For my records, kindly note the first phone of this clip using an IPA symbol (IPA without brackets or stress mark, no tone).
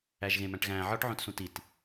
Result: æ